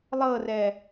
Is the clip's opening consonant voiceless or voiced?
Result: voiced